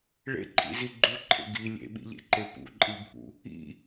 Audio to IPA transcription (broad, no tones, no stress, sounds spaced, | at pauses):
ɭ ḛ ǃʰ ḭ z i ɡ͡ǃ u ǃʰ ḛ ɡ i lʲ ḛ ɓ ḭ ʎ ḛ ǃ e p ṵ ǃʼ i bʱ ṵ | ḭ